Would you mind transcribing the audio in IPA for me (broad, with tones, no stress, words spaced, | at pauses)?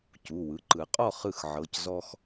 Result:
cu˩˧˩ wɯ˩˧˩ǃɯ˨˩˦ qʼɔ˦˨χ ɯ˦˨xʕɤ˩˧˩c zɔ˦x